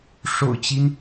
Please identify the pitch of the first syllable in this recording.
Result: low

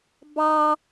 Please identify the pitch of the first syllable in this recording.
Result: high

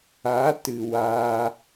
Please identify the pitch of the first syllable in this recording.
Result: rising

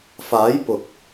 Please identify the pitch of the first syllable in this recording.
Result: rising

